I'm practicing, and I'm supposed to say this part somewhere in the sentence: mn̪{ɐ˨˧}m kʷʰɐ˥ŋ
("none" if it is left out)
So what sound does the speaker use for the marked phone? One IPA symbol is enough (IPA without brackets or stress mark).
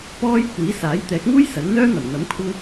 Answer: ɐ˨˥